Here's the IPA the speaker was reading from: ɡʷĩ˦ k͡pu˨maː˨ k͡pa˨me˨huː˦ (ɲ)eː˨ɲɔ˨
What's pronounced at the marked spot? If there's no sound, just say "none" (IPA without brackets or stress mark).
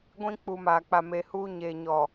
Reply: ɲ